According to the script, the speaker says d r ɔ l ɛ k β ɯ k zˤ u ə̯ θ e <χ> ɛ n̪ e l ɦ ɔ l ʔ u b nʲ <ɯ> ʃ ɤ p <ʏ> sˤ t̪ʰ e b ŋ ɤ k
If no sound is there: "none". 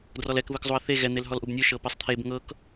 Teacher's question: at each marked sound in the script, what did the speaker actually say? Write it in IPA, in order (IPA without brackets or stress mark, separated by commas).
ɣ, ɯ, ɛ